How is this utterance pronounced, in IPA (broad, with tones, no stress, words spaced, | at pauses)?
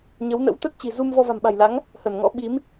ɲə˨˦wnə̰˧˥w t̪ə˦˥t̚t͡ɕi̤˨˩ zu˧m vɔ˧va̤˨˩mɓa̤˨˩jla˨˦ŋ | hə˧˩nŋɔ̰˧˥ɓi˨˦m